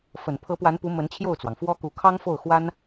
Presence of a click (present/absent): absent